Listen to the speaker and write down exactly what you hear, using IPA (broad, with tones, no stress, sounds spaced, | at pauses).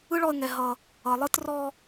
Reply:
ɯ˦ ɭ ɔ˧ ə̯ ŋ ɛ˨ ɦ ʌ˨ | ʌ˨ lˠ ɯ˦ t r ɔ˧